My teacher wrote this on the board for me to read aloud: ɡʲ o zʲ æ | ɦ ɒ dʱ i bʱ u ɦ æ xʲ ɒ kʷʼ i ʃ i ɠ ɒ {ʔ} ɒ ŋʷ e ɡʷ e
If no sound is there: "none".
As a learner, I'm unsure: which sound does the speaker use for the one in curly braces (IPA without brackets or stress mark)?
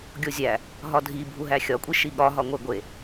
ɦ